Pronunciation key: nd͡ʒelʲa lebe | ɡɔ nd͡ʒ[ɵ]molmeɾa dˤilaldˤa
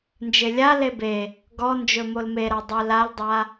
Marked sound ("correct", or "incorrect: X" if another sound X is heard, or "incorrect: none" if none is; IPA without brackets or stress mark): correct